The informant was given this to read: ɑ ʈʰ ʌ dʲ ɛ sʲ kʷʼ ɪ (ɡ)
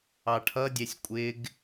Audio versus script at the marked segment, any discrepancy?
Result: no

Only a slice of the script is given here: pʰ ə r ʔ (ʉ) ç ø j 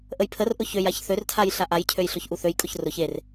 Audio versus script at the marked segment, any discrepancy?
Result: yes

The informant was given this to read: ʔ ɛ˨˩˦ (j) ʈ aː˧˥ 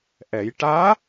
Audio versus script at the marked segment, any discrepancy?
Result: no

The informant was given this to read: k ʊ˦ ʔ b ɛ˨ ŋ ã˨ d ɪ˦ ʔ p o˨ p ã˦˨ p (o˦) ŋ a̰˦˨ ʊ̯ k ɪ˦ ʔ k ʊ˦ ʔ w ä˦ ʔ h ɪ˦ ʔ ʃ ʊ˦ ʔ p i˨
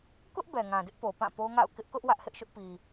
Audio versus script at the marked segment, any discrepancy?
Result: no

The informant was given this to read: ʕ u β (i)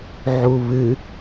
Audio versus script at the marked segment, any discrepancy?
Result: yes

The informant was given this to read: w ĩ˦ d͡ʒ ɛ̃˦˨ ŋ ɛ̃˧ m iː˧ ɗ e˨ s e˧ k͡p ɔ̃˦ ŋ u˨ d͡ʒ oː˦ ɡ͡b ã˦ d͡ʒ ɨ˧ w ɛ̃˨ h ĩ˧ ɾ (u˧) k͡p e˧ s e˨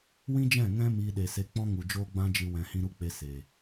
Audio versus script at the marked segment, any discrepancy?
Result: yes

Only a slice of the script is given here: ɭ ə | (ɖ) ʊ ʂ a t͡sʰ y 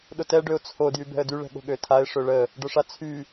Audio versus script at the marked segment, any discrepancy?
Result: no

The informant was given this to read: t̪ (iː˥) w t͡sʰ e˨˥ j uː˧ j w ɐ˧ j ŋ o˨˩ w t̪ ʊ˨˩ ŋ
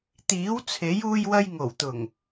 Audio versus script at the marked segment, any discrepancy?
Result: yes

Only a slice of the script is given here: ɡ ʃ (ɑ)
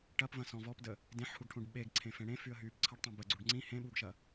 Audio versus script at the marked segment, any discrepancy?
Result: yes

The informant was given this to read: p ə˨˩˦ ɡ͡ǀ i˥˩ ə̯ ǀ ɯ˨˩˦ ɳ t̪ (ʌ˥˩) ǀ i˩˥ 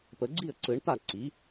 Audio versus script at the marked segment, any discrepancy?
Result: yes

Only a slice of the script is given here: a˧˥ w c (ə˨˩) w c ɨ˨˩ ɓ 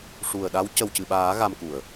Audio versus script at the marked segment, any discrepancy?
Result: no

